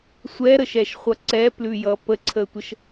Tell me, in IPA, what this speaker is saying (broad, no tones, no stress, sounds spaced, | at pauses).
sʷ ɛ ɾ ə ʃ ɛ ʃ χʷ ʌ ǀ ɛ p l ʉ j ʌ p ə ǀʰ ə tʷ ə ʃ